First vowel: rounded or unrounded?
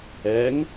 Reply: unrounded